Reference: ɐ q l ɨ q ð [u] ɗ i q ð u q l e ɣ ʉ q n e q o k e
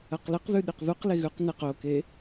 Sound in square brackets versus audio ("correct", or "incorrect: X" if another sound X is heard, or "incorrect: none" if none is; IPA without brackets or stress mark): incorrect: ʉ